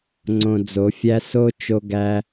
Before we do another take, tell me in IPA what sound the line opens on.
ŋ͡ǀ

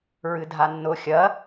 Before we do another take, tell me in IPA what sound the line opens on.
ɹ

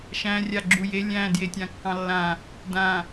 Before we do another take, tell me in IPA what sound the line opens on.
ʃ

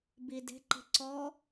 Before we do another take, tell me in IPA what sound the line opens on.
b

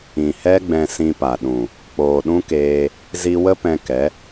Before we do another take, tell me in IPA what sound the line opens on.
ĩ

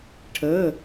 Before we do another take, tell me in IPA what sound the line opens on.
ʈʰ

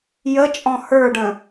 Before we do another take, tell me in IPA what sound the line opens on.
j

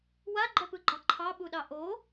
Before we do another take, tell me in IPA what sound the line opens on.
w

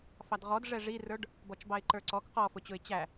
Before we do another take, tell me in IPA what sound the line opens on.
f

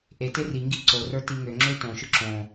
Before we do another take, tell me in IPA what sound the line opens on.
ʔ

